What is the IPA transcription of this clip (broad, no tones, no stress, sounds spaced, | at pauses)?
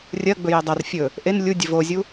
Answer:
rʲ ɜ ɡ͡b ɵ j ɛ dˤ ɐ r fʲ ɵ | ʔ e n lʲ u dʲ ɘ v o zʲ u